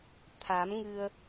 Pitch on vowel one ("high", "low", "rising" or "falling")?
rising